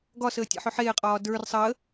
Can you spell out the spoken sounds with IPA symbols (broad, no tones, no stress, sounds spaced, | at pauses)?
ɡ ɒ s əː tʲ ə̰ ħ ɵ ħ eː qʼ ɒː d ə˞ r sˤ əː